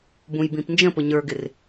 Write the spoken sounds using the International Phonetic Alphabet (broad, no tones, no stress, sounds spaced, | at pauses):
b ũ j b ĩ p n d͡ʒ ə̃ p ʊ ɲ ə˞ ɡ ɪ r